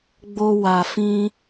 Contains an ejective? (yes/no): no